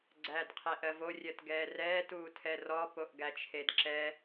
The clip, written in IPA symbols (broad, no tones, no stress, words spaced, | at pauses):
ɡ͡ǀæːdqʰeʔɜvo rʲɜtɡɛːrɛː tuːtʰɛrɔ poʔɡæt͡ʃʰedǁɛ